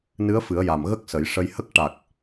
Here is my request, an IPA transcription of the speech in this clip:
n ɨ˧˥ ə̯ f ɨ˨˩˦ ə̯ j a˨˩ m ɣ ə˦˥ k̚ s ə˨˩˦ j ʂ ə˧ j h ə˦˥ k̚ ʈ a˨˩ k̚

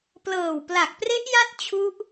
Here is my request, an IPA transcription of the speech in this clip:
p l ɤː˨˩ w p l a˨˩ k̚ p r e˦˥ ʔ j a˦˥ t̚ t͡ɕʰ u˦˥ ʔ

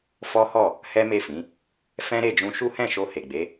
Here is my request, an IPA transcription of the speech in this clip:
f ɔ˦ h ɔ˦˨ | h ɛ˦ m e˦˨ f ĩ˨˦ | f ɛ̃˦ ɾ e˦˨ d͡ʒ ũ˧ ʃ u˦ h ɛ̃˦˨ ʃ o˧ h e˨ ɡ͡b e˨˦

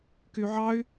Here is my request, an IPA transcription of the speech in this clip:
k y ʕ ɑ y̯

